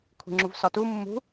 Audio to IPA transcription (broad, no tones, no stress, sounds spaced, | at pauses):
kʷʰ i̤ ŋ͡ǁ u v s ɒ t u mː ṳ